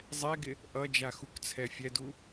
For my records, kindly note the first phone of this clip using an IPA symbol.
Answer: zˤ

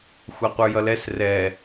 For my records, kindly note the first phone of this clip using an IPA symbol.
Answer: xʷ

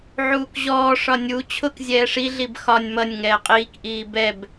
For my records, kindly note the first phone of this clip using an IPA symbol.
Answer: ʕ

